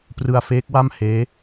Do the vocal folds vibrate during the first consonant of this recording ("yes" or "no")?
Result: no